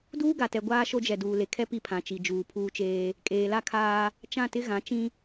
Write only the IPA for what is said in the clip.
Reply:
d uː˦ ɡ a˨ t ɛ˨ ɡʷ aː˦ ʃ o˦ d͡ʒ ɛ˨ d uː˨ l e˨ kʰ ɛ˦ p i˦ pʰ ã˨ t͡ʃ i˨ d͡ʒ uː˨ pʰ uː˦ t͡ʃ eː˦ | kʼ eː˨ l a˦ kʰ aː˦ | t͡ʃ ã˦˨ t ɪ˦ ɣ ã˨˦ t͡ʃ ĩ˦

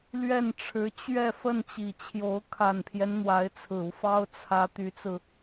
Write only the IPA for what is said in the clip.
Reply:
l ɥ ɛ˥˩ n ʈ͡ʂʰ ɻ̩˧˥ t͡ɕ ɥ ɛ˥˧ f ə˥˩ n t͡ɕ i˨˩ t͡ɕʰ j o˧˥ ʊ̯ kʰ a˨˩ n pʰ j ɛ˦ n n̪ w a˧˥ ɪ̯ t͡sʰ ɹ̩˨˩ u˦ f ɑ˥ ʊ̯ t͡sʰ ä˧˥ t̪ y˧˥ t͡s ɹ̩˧

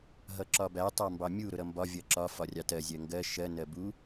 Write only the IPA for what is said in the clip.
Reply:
ɦ ʌ ǁ ɒ b æ tˤ ɑ m b ɑ mʲ u ɾ ʊ ɾ ʌ m b ɒ vʲ ʌ ǁ ɒ f ɒ rʲ ɑ t ɜ zʲ ɜ ŋ ɡ ɜ ʃ ɜ n ɜ b u

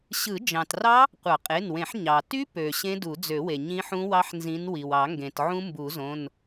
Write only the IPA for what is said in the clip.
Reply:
ɕ ɯ˨˩˦ d͡ʒ ɑ̃˩ t r ɑ˦˥ | qʷ ɑ˨˩˦ qʼ e˩˧˩ n w ẽ˨˩˦ ħ ɲ ɑ˩ t y˦˥ p ø˩ ɕ ẽ˦˥ d u˨˩˦ d͡z ø˨˩˦ w e˩ ɲ ĩ˦˥ ħ ũ˦˥ w ɑ˦˥ ħ n z ĩ˨˦ n w i˩ w ɑ˨˩˦ ŋ ɡ ẽ˩ t ʕ ũ˦˥ m b u˨˩˦ z õ˩˧˩ n

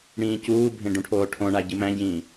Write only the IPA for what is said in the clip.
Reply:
ɽ ĩː c uː bʱ ẽ ɖ ũ ʈʰ oː ʈʰ õ ɳ a ɟ ɨ m æ̃ ɟ ĩː

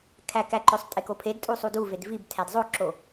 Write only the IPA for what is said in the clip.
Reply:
kʰ æ k æ ǃ ø sˤ tʼ e k o pʰ e d tʼ u sˤ u d u v e d v i b tʰ æ d zˤ o ǁ o

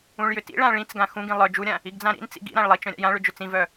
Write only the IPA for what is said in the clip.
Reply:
ũ ɭ j ʏ t ḭ ɭ ã ɭ ĩ t͡s ɡ ã x ũ ɡ ĩ lˠ œ d͡ʒ u ɾʲ ã | i ɡ d͡z ã ɾ ḭ n t͡s ḭ ɡ ḭ ɾ ã ɭ lˠ i t͡ʃ œ̃ ɾʲ a̰ j ã ɭ ʏ d͡ʒ ʏ t͡s ĩ v œ

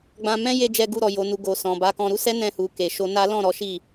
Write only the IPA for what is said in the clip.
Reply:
ɡ͡b ã˧ m ɛ̃˦ j e˧ d͡ʒ ɛ˧ ɡ u˧ ɾ ɔ˨ j o˨ n u˨ ɡ o˨ s ɔ̃˨ b a˨˦ k ɔ̃˧ ɾ u˦ s ɛ˦ n ɛ̃˧ h u˨ k e˨ ʃ o˧ n a˦ l ɔ̃˦˨ ɾ ɔ˨˦ ʃ i˦˨

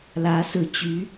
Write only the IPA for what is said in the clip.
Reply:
l ä˧˥ s ɹ̩˨˩ t͡ɕ y˧˥

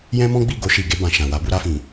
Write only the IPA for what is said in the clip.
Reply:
j ɛ̃˦ m ɔ̃˦ ɡ͡b i˦˨ ɡ o˧ ʃ i˨ ɡ e˧ b ã˨ ʃ ã˨ w a˧ b u˧ ɾ a˧ f ĩ˨

